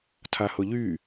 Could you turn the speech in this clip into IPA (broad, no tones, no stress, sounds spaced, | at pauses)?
tʰ a h ʊ ʎ y